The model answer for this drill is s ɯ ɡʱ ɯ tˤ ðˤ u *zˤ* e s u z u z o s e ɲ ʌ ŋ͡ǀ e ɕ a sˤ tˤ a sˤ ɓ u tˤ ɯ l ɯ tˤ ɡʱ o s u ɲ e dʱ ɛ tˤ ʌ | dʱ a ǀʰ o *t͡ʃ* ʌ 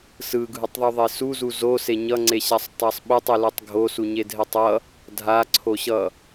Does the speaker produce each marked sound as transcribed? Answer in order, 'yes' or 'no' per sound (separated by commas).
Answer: no, no